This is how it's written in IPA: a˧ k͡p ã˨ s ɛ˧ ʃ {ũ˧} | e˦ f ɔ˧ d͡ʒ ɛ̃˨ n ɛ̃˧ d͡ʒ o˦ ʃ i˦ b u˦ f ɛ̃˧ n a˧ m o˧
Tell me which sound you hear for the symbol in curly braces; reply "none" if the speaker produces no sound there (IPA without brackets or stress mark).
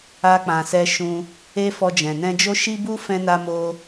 ũ˧